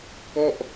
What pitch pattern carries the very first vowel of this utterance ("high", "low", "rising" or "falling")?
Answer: falling